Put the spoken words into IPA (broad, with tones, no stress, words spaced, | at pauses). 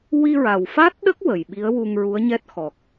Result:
wi˧ɹa˨˩wfa˦˥t̚ ɗə˦˥k̚ wə˨˩jɓi˧˥ə̯ wu˧ŋɹu˧˥ə̯ɲɛ˦˥t̚ xɔ˨˩k̚